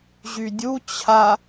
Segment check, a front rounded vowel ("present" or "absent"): present